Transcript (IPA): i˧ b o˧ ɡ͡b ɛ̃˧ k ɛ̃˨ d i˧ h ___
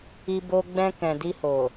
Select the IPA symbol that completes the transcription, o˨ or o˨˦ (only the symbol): o˨